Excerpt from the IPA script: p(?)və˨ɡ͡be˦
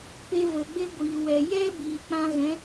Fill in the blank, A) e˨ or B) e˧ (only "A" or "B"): B